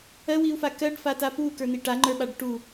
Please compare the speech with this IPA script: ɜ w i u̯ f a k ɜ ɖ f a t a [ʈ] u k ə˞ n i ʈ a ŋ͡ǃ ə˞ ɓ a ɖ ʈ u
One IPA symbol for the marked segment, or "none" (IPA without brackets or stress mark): p